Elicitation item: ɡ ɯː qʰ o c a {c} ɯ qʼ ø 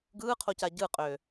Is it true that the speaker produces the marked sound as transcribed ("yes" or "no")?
no